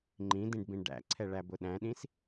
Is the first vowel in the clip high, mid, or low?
high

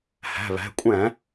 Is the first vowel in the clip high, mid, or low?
low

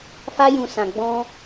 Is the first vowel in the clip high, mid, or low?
low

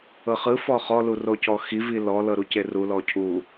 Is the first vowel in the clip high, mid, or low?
mid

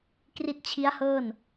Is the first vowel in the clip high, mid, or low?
high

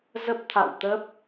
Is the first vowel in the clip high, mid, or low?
mid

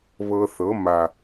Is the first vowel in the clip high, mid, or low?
mid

